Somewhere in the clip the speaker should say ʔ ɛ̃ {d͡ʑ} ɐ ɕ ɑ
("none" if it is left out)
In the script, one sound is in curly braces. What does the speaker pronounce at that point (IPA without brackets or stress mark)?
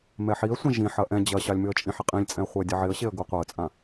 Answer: d͡ʑ